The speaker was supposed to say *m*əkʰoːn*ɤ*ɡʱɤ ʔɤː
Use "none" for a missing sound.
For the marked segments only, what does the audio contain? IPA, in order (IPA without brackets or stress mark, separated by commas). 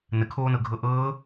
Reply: n, ɤ